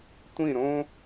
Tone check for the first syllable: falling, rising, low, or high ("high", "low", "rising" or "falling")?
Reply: falling